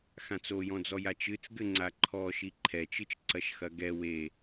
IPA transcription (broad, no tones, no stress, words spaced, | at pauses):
xãt͡sojɔ̃d͡zɔ jat͡ʃɨt͡sɡɘŋ͡ǀa ǃʰɔʃi ǃʰɛt͡ʃɨt͡ʃ ǀɐʃxɐɡɛ we